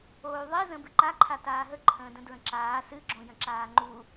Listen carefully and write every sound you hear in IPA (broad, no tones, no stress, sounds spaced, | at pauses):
oː y̯ ðˤ i z ə̃ b ɨ ǃ a ǃʰ a t aː ɦ ə ǃʰ ə̃ː d ə̃ d ɹ ə̃ ǁ aː s ɨ ɡ͡ǁ õ j ə̃ ǁ aː ŋ͡ǃ u